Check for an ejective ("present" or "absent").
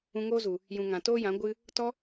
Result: absent